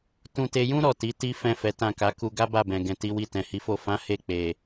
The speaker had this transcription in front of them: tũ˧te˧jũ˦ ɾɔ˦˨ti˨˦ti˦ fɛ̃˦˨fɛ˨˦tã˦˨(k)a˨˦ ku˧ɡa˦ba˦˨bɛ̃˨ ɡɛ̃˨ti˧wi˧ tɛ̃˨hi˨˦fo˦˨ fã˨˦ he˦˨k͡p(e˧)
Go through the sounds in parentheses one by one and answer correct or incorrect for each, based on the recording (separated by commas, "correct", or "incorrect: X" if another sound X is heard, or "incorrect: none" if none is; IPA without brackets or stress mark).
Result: correct, incorrect: e˨